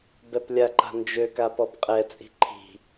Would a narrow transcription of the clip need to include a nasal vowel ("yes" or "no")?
no